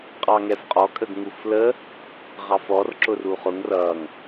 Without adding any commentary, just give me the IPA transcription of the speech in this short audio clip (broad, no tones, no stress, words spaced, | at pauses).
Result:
qʼɑŋɛfqʼɔ kʼəɡŋuflə | ʁɑfɔr ǁʊruχʊŋ rʌŋ